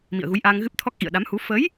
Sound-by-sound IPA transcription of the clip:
mḭ˧˨ə̯ɣu˨˦jʔaː˧ŋ ɣɨ˦˥p̚t̪ʰɔ˦˥k̚ ʔḭ˧˨ə̯ɗa˨˦mhu˨˦ fə˨˦j

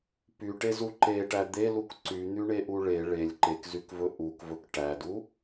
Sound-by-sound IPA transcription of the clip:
pyʈezu ǃeʈæ d̪eluk ǀyn̪yɳeʔu ɭe ɭelʲ ǃekzykvɵ ʔukvɵk ʈædu

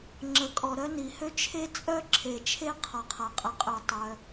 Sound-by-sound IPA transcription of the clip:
ŋ͡ǁə˩kʼɔ˩ ɾœ˥ni˩hø˥ t͡ʃʰe˥ t͡sʼœ˥ ǁʰe˩t͡ʃʰe˥ qʰɔ˩qʰa˩ qʼə˩qʼø˩ tˤœ˩

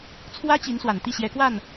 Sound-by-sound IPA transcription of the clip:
t͡sʰwä˥t͡ɕi˧˥n swa˨˩nt̪i˥˩ɕjɛ˧˥kwa˥˩n

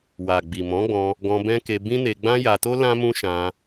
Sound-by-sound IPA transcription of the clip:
wa˨ɡ͡bi˨ mɔ̃˨˦ɡ͡bɔ̃˧ | ɡɔ̃˧bɛ̃˦ke˧ bĩ˦ne˧ ɡ͡bã˦ja˧to˦ lã˦mũ˦ʃã˧

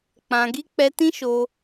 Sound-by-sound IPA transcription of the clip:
k͡pã˧ɡi˦ k͡pɛ˧ tĩ˦ʃo˧

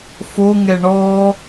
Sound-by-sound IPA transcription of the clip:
foŋɛ ɳɔ

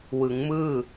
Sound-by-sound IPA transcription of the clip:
wɯ˩˦ŋmɯː˥˩

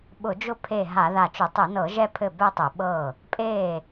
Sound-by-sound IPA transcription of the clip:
ɓʊ˧˩˧d͡ʒʊ˥˩ pʰe˧˩ ɦa˧˩˧ða˧˩t͡ʃʊ˧˩˧ tˤɘ˧˩˧nɤ˧˩˧ ʒɛ˥˧pʰɘ˥˩bɛ˥˧tˤɛ˧˩˧ ɓɤ˥˩ | pʼe˥˩

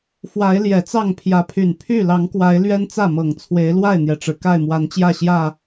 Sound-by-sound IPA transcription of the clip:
fwa˨˦ɪ̯ ljɛ˨˩t͡sɑ˥˨ŋpʰjä˨˦pʰy˨˩n pʰy˥˨ lɑ˨˦ŋkwa˨˦ɪ̯ lɥɛ˦nt͡sä˥˨mɤ˨˩ŋ t͡sʰwe˨˦ɪ̯lwa˥˨ɪ̯n̪jɛ˩ʈ͡ʂɻ̩˩ ka˥˨ɪ̯mwa˨˦nt͡ɕjä˥˨ɕjä˥˨

